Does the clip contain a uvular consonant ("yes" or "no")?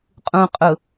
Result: yes